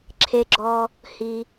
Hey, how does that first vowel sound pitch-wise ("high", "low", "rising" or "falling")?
low